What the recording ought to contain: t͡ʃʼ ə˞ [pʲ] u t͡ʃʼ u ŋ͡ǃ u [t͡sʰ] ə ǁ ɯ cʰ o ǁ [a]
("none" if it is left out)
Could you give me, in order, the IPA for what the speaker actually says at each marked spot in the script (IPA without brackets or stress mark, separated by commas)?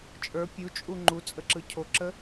pʲ, t͡sʼ, ə